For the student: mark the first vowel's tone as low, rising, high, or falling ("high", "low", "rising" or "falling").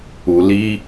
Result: low